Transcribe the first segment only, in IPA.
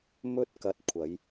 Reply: m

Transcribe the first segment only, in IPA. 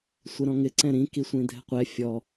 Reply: sʷ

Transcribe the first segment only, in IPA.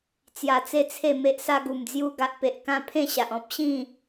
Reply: t͡s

